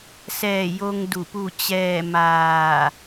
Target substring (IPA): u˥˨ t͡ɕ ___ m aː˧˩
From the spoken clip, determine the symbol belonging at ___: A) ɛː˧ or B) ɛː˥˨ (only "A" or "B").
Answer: B